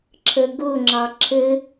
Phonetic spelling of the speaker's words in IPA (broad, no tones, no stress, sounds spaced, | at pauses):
ǁʰ ə ɡ ʊ ŋ͡ǁ ɑ ǁʰ ɘ